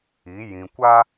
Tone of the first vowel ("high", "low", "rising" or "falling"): rising